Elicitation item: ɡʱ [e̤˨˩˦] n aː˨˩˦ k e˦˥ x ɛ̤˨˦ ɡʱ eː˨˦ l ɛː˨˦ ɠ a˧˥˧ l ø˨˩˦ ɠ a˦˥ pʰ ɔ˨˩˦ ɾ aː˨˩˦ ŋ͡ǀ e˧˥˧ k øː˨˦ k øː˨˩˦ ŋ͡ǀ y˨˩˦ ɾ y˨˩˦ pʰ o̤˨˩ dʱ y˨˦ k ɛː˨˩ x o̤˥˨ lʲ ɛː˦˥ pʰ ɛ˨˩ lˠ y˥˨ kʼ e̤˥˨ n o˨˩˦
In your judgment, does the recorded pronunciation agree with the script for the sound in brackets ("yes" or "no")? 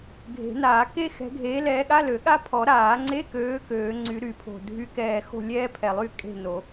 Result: yes